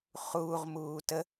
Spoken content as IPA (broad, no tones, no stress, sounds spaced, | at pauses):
χ uː ʁ m uː t ə